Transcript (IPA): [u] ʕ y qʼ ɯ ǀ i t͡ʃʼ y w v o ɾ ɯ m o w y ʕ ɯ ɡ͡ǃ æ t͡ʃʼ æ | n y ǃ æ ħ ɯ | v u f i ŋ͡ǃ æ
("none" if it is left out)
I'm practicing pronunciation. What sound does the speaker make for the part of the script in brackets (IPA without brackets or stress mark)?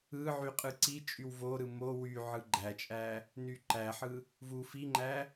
ɯ